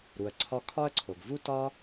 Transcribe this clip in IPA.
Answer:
ɾ u˩ ɐ̯ ǀʰ ɒ˦ kʰ ɒ˥ ɐ̯ ǀʰ o˩ ɡ v u˥ t ɒ˥

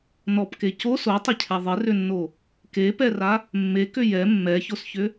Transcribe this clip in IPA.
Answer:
n ɔ p k e c o s o tˤ ɪ cʰ ɛ ðˤ ɪ r ʏ nː o | k e p ɛ r a | mː e k ʏ j ɛ mː ɛ ç o s ç ʏ

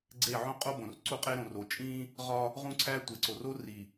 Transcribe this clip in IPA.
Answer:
ɡ͡ǀ e˦˨ ʕ õ˦ qʼ o˦ b õ˨ r ǀ u˦ qʼ e˦ ɾ õ˨ r o˨ t͡ʃʼ ĩ˦ | ʁ ɒ˦ | ʁ ũ˦ ǀʰ æ˦ tʷ e˨ ǀ o˨ r o˦ r i˨

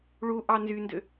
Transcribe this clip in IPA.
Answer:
ɭ u ʔ ɑ n z y n d ø

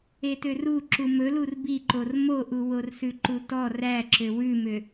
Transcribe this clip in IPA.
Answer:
e t ø r u ǁ u m ɵ l u r b i ǃ o r m o ʔ u w o r s ʉ ǃ u t ɔ r æ ǁ ø w ʉ m ø

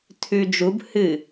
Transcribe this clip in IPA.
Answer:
tʰ ʉ d͡ʒ u b h ɨ

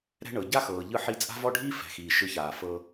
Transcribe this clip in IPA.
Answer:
ɾ ɛ̤˦ ɳ ɤ˨ ɟ a˦ x ɤː˨ ʎ ɯ˧ ħ i˧ t͡sʼ a̤˦ v ɔ˦ ɖʱ iː˦ f ɛ̤˨ x iː˨ ʃ ɯ˧ ç aː˨ f ɤ˧

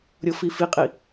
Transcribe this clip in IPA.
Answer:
ɾʲ ɤ f i f i qʼ i

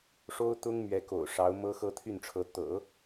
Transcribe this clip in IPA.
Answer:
ʂ o˥ ʊ̯ t̪ ʊ˥ ŋ m ɥ ɛ˧˥ k o̰˨˩ ʊ̯ ʂ ɑ˧˥ ʊ̯ m ɤ˥ x ɤ˥˧ t̪ʰ y˥˩ n ʈ͡ʂʰ ɤ˧˥ t̪ ɤ̰˨˩˦

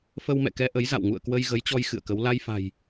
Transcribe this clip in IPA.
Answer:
f ə˧ w m ɛ̰˧˨ k ɛ˧ ʔ ə˨˦ j z a̰˧˨ w ŋ ṵ˧˨ ə̯ k w ə˧ j ɣ ə˨˦ j t͡ɕ ɔ˧ j x ɨ̰˧˨ ə̯ k ə˨˦ w l a˧ j f a̤˨˩ j

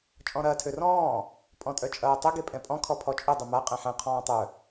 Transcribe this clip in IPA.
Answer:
t͡ʃʼ ɔ̃ ɾ ɐː tʰ ø r ɔ̃ː | pʼ ɔ̃ tʼ œ t͡ʃʼ ɐː tˤ ʊ ɡ e pʼ ɛ̃ pʼ ɔ̃ kʰ ɔ pʰ ɔ t͡ʃʼ ʊ dˤ ə m a qʼ ɛ̃ ħ ɛ̃ qʰ ɔ̃ː tˤ œ

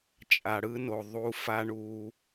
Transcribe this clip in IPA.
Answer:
t͡ʃʼ a˨ ɽ ɯ˦ n o˨ ðˤ u˧ f a˦ ɳ u˧

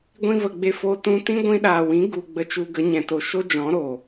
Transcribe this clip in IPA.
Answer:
ɡʷ ĩ˧ v ə˨ ɡ͡b e˧ f o˧ t ũ˧ t ĩ˦ ɡʷ ĩ˧ ɗ aː˨ w ĩ˨˦ ɡ u˧ ɡ͡b ə˧ t͡ʃ u˧ ɡ ə˨˦ ɲ ɛ̃˨ t o˨ ʃ o˦ d͡ʒ ɔ̃˨˦ ɾ o˨

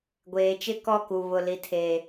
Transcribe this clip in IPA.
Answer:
ɡʷ eː˨ t͡ʃ ɪ˦ k ɔ˦ k u˨ β ʊ˨ l i˨ tʰ e˨

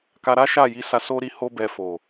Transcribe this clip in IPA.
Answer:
k a˧ ɾ a˦ ʃ a˦˨ j i˨˦ s a˧ s o˧ ɾ i˨ h o˧ b ɛ˨ f o˨

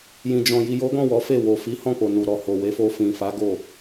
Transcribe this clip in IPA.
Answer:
j ĩ˨ d͡ʒ ɔ̃˨ j i˨ j o˨˦ ɡ ɔ̃˦˨ w ɔ˨˦ f e˦˨ w o˨ f i˨˦ h ɔ̃˦˨ k͡p o˨ n u˨ ɾ ɔ˨ h o˨ w e˨˦ f o˧ f ĩ˨ f a˨˦ ɡ o˦˨

